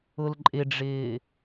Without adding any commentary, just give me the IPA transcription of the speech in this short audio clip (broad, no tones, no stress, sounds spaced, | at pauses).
ʊ l ǃʼ ɪ ɖ͡ʐ ɪː